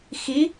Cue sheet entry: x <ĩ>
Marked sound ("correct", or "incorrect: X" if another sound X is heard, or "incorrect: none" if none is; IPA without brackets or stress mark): incorrect: i